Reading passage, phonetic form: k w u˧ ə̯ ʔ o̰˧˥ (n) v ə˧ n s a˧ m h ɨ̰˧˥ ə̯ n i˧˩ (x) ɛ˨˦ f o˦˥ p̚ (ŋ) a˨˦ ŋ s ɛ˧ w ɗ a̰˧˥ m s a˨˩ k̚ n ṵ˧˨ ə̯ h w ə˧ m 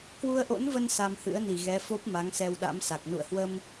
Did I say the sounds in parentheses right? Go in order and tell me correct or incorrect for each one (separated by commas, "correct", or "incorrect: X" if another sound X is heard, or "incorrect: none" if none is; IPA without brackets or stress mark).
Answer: correct, incorrect: ɣ, incorrect: m